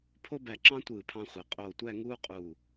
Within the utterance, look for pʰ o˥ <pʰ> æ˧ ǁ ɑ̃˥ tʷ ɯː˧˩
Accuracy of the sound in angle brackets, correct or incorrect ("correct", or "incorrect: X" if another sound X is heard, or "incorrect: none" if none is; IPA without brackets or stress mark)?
incorrect: b